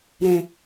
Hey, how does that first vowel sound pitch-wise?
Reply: low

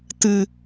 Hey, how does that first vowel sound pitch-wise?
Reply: low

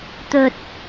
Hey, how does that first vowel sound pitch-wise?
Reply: low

